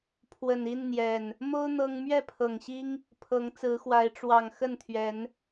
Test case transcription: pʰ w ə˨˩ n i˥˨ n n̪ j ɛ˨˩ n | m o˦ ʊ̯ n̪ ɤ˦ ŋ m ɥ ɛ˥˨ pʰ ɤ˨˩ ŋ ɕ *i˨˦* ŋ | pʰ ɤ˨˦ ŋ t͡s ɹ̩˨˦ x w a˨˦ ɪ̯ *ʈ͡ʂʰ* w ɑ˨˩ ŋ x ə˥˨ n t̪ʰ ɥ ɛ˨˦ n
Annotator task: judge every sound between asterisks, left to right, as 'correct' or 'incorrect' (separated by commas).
incorrect, incorrect